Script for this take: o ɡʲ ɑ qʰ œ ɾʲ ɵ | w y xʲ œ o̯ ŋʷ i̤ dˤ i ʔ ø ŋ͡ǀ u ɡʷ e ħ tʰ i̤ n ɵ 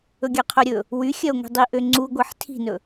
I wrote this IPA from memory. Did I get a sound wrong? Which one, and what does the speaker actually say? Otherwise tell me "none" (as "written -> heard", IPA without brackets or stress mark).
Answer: o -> ɵ